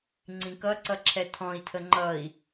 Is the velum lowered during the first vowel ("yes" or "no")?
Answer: yes